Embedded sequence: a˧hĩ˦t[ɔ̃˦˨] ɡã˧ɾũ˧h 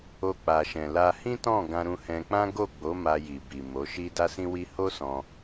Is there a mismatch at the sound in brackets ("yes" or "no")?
no